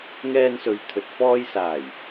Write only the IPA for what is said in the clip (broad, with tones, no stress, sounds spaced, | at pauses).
ŋ ɛː˧ n s ɵ˨ ɥ t̪ʰ ɵ˨ t̚ f ɔː˧ j s aː˨˩ j